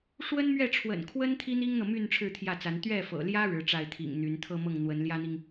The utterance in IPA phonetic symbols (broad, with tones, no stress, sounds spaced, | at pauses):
ʂ w ə˥ n m ɥ ɛ˥˩ ʈ͡ʂʰ w ə̰˨˩ n kʰ w ə˥ n t̪ʰ i˥ n̪ i˥ ŋ n̪ ɤ˨ m y˥˧ n ʈ͡ʂʰ ɻ̩˥˧ t̪ʰ j ä˥˩ t͡s a˧˥ n t̪ ɥ ɛ˥˩ f ɤ̰˨˩ l j ä˥ ɻ ɻ̩˧˥ ʈ͡ʂ a˥˩ ɪ̯ t̪ʰ ḭ˨˩ ŋ n̪ y˧˥ n t̪ʰ ɤ˥˧ m ɤ˥˩ ŋ n̪ w ə˧˥ n l j ä˥ n̪ i˨ ŋ